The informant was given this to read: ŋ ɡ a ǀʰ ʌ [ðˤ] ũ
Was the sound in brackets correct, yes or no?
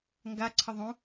yes